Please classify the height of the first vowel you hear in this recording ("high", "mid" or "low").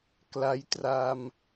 low